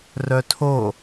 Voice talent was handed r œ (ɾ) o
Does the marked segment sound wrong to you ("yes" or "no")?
yes